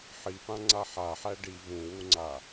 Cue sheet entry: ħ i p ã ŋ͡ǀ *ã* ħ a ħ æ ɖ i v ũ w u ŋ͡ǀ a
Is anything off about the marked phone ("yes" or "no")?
yes